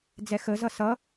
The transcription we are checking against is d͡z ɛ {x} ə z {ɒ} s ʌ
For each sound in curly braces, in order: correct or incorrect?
correct, incorrect

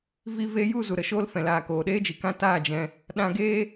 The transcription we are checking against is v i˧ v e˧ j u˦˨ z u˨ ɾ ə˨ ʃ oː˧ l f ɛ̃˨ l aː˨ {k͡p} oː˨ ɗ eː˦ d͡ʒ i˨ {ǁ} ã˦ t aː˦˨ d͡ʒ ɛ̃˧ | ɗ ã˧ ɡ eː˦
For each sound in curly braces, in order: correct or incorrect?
incorrect, incorrect

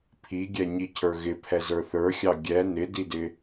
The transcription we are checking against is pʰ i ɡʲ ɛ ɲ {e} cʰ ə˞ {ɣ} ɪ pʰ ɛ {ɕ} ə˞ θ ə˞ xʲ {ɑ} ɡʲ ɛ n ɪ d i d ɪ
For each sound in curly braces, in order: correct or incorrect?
incorrect, correct, incorrect, correct

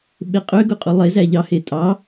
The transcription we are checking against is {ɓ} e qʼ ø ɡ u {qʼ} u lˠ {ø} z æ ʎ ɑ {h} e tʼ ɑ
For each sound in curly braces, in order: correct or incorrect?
correct, correct, incorrect, correct

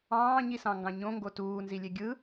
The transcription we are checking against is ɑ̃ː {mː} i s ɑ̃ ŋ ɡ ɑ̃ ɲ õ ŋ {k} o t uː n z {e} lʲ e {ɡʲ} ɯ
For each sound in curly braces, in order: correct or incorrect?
incorrect, incorrect, incorrect, correct

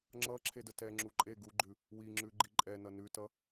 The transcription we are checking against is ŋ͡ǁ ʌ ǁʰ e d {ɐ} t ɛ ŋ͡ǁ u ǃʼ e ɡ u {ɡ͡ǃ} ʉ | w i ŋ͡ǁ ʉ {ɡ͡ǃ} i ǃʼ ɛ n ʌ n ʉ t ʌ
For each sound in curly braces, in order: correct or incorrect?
incorrect, correct, correct

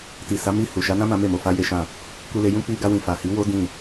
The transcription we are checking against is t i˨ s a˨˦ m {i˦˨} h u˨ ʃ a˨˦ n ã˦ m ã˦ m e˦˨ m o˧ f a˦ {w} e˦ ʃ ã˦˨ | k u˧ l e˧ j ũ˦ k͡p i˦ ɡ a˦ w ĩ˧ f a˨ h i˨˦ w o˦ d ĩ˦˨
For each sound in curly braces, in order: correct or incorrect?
correct, incorrect

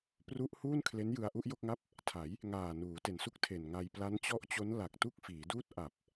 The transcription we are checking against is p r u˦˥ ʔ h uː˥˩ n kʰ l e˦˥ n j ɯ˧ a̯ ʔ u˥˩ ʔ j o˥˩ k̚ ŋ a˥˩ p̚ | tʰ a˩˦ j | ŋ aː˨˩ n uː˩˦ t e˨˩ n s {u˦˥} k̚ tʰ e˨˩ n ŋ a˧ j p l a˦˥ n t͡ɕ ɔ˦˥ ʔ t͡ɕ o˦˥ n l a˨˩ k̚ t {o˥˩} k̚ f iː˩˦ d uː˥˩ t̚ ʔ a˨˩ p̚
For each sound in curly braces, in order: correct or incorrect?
correct, incorrect

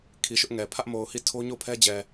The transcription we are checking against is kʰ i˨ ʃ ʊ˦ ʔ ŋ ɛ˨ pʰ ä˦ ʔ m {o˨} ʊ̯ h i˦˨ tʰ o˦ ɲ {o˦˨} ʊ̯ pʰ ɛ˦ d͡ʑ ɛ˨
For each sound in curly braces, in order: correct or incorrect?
correct, correct

